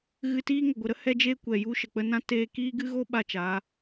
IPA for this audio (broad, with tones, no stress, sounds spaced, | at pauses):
ɣ ɨ˧ t iː˦ ŋ ə˨ ɡʷ ə˨ ɾ ə˦ h ɛ˧ d͡ʒ eː˧ kʷ ɛ˨ j u˧ ʃ ə˨ k͡p ə˧ n ã˦ t eː˧ k iː˦ ɡ ɨ˦ ɣ o˦ ɓ a˦ t͡ʃ a˨˦